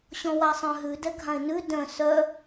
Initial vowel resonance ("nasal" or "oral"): nasal